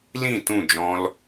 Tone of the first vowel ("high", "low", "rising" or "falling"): falling